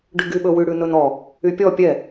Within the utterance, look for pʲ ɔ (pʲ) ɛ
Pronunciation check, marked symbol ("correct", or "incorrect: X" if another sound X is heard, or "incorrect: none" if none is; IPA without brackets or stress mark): correct